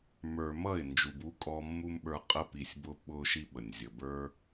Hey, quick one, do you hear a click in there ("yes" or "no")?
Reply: no